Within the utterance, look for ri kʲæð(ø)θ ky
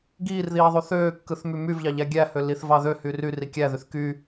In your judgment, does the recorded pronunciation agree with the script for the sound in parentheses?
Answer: no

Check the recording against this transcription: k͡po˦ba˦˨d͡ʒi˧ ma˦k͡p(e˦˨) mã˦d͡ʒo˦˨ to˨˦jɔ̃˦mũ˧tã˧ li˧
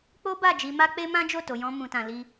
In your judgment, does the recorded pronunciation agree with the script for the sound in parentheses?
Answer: no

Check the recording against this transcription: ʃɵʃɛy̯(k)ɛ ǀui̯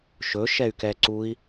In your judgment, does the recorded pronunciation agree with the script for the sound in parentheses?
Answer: yes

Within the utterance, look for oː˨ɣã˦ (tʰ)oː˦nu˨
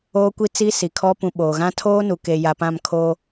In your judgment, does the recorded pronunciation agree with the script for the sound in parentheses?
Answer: yes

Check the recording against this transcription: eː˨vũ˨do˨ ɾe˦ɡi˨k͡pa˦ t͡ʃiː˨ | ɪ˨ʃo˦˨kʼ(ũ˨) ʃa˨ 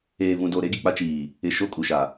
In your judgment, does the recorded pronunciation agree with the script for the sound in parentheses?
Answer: no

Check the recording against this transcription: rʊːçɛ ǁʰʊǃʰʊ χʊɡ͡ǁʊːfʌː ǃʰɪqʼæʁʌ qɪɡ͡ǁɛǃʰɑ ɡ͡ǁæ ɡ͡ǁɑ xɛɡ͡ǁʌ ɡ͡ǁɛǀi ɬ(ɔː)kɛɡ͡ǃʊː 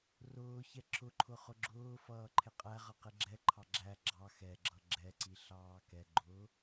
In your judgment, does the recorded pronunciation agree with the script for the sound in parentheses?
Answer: no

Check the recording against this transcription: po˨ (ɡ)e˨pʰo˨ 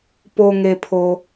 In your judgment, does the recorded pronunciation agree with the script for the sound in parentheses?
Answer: no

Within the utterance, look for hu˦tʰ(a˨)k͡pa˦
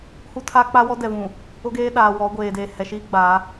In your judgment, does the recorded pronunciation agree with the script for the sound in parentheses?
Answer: no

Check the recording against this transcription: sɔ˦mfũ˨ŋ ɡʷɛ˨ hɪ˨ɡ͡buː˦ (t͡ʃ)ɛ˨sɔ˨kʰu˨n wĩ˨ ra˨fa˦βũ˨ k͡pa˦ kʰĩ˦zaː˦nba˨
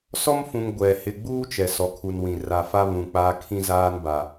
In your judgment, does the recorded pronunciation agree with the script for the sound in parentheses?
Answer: yes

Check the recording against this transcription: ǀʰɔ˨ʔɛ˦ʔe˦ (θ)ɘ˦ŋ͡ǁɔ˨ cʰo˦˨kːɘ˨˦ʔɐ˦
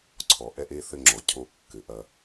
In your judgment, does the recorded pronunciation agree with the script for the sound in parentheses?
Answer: yes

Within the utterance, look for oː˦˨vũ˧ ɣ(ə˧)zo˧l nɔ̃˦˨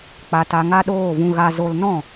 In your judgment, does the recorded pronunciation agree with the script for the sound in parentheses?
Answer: no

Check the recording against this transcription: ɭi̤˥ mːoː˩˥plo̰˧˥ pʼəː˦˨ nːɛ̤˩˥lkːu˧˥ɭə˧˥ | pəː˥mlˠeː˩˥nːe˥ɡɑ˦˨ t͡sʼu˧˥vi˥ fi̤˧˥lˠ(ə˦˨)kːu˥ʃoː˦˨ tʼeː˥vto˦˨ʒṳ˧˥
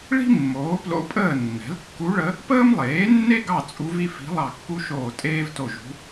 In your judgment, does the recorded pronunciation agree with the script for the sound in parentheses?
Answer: no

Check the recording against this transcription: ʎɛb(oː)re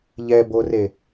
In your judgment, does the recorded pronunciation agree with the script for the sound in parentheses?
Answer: no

